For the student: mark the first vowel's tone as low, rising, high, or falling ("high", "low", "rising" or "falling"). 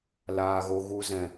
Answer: low